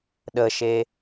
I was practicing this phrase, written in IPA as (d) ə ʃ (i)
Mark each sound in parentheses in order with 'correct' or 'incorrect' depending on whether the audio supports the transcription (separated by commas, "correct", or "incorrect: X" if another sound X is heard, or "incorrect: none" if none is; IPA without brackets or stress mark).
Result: incorrect: ɗ, incorrect: e